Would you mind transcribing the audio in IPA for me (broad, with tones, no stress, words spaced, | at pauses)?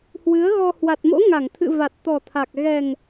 hwɨ˨˦ə̯ɣɔ˧ hwa˨˩t̚mo̰˧˥ŋa˧˩ŋt̪ʰɨ̰˧˨ va˨˩t̚t̪ɔ˨˩t̪ʰa˨˩k̚ ɣɛ˨˩ŋ